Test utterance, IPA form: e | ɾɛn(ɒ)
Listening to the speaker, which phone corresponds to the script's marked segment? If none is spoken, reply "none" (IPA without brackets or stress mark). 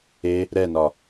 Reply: ɒ